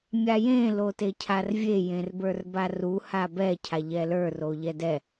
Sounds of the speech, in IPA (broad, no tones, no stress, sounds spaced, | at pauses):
mʲ a j ẽ l o t e cʰ a r vʲ e j ẽ r b ə˞ r b a r u h a b ɛ cʰ a ʎ ɛ l ə˞ r o ʎ ɛ d ɛ